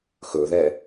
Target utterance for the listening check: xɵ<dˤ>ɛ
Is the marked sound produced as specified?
no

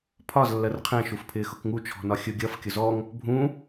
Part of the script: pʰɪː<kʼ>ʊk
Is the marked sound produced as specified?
no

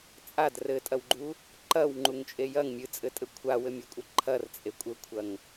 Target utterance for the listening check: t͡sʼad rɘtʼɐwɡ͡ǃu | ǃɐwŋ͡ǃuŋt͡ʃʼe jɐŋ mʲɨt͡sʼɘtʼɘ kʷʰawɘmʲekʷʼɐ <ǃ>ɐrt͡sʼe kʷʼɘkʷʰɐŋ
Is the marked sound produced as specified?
no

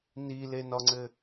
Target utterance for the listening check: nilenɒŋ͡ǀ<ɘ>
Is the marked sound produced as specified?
yes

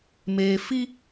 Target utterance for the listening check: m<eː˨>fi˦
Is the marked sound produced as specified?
yes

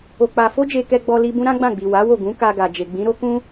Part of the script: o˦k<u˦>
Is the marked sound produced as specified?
no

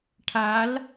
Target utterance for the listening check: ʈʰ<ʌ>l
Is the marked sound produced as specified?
no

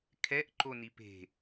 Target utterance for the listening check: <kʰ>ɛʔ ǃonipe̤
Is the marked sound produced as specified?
yes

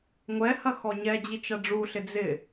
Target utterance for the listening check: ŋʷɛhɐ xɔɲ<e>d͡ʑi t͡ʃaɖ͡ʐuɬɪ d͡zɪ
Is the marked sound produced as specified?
no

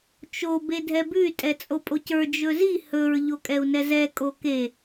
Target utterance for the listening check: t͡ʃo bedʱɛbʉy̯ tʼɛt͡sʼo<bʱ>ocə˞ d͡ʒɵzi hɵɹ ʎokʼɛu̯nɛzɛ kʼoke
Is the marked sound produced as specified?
no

